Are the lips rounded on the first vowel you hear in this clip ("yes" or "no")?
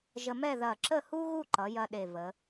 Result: no